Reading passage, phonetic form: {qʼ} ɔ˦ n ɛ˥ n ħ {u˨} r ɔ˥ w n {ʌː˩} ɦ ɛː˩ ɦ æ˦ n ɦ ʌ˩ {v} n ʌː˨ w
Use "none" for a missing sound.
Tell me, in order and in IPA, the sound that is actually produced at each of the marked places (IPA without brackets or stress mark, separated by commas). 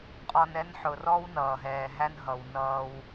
qʼ, ʊ˨, ʌː˩, w